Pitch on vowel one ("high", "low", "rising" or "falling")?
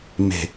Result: low